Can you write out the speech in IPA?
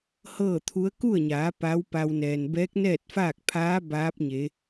hɤː˥˨t̪ʰu˧˥ə̯ ku˥˨ə̯ɲaː˩˧ pa˧˥w pa˧wnɛː˩n bɛː˧˥k̚nɛː˥˨t̚faː˥˨k̚pʰaː˧˥ baː˧˥p̚ɲe˩˧

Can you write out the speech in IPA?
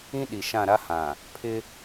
ĩ˦ɗi˨ʃã˦˨ɾa˦ hã˨ | pʰɪ˦

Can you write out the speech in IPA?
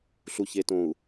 ɬu˨çe˨tõ˨u̯

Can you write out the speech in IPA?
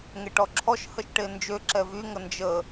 ŋeʈɔǁʰɔʃ həʃʈend͡ʒø ǁɛvy ŋənd͡ʒə

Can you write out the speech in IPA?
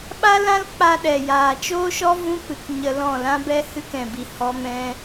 ɓa˦lã˦l k͡pa˧ ɗɛ˨jaː˨t͡ʃoː˦ʃɔ˦ vũ˦pɨ˨k ɲə˧lɔ̃˦˨ lã˦bɛ˦ hɨ˧k ɛ̃˨bi˨ hɔ˧mɛ̃˧

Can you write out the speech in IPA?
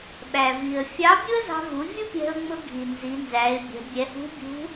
ɓæ˩vi˩ə̯ fʲɑ˧˥bʲu˥ə̯zɑ̤˧vu˩˧ vʲu˥pʲɛ̤˧ʊ̯ŋ͡mʊ˧ɡʱi˩ nzi˩˧nzæ˩˧ɪ̯bʲɛ̤˩˧ bʲɛ˩˧hṳ˧˥bʲṳ˧˥

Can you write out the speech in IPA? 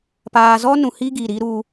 paː˨zɔ˦ nũ˨hi˦ ɡi˨ɾi˦ ɾu˦

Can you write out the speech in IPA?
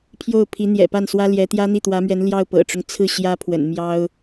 pʰjo˥˩ʊ̯pʰi˧˥ n̪jɛ̰˨˩pa˥˩nswä˥ljɛ˧˥ t̪jä˥n̪i˥˩t̪wä˧˥mɥɛ˧˥n ljɑ˥˩ʊ̯pɤ̰˨˩ʈ͡ʂʊ˦ŋ t͡sʰɹ̩˥˩ ɕjä˥pʰwə̰˨˩n mjɑ˥ʊ̯

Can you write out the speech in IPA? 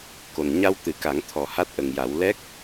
ko˨˩n ɲa˧w t̪ɨ˨˩˦ka˨˩˦ŋ t̪ʰɔ˨˩ha˦˥t̚ʔə˨˩ŋja˨˩˦w lɛ˦˥k̚

